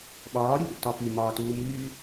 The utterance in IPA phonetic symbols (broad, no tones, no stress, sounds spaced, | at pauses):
ɓ ɒː ɾʲ u ɗ o̰ t ɒ f y m ɒː t uː m yː